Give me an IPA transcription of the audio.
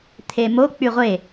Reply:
t̪ʰemo k͡pyʁʷe

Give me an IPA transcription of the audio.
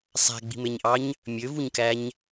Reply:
sˤæ̤ɡ͡bi̤meɲʔɑɲ | mʲøvuɲkæɲ

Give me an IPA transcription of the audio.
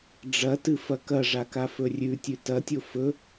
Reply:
ɖ͡ʐɐtɨfɐ kɐʐakafɵ rʲʉtʲʉ tɐtʲo fɵ

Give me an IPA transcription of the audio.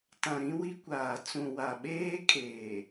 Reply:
tã˨ ɾĩ˦wi˦kʷaː˨ t͡sũ˨wa˨ɓeː˦kʼeː˨

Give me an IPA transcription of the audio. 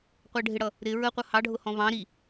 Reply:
qʷɛɖʱɪɽʌ | ɾɪ ɹəqʷʌ hɑɖʱʊ hɔ̃βɑ̃ ɾi

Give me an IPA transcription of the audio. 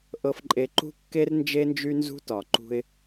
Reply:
ʔɤ˨fǃʼe˨ǃṳ˦ kːe˦rnd͡ʒe˦nd͡ʒy˦ nzṳ˦tɒ˨ǃṳ˦ɪ̯

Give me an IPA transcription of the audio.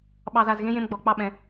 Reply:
ɓɑ˨za˨zɣẽ˦ jẽ˦mɡ͡bɔ˨˦ k͡pɑ˦ɓɛ̃˨˦

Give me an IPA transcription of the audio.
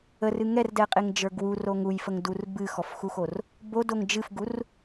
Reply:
ərɨ ŋɛrdɛqʼeŋd͡ʒə˞ ɡwuroŋ ujfəŋdur bɨxɔfxuxor | bodoŋ d͡ʒɨfɡur

